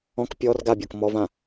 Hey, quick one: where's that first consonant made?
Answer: velum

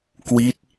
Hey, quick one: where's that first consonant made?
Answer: velum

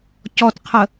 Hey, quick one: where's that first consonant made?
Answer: palate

